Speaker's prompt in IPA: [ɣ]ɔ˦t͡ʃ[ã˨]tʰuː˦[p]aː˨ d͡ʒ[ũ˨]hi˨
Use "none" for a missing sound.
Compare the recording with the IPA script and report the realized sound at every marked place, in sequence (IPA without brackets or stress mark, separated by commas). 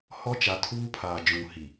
h, a˨, pʰ, ũ˨